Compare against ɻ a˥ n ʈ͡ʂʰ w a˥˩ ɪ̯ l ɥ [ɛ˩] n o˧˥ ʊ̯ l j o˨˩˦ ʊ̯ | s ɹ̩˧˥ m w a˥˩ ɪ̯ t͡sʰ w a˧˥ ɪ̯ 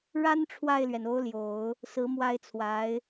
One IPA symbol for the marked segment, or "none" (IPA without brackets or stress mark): ɛ˩